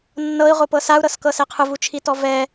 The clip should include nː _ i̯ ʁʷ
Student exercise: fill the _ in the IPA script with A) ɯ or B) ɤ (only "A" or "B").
B